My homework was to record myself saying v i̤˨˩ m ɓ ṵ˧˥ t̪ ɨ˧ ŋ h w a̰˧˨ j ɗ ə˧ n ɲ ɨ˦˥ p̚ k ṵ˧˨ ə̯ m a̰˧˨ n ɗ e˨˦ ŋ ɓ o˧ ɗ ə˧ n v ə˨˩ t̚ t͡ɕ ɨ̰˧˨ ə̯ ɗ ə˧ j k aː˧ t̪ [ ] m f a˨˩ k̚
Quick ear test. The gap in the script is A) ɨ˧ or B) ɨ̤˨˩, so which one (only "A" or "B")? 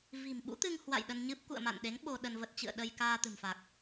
B